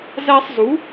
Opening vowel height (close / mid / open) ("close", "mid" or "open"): open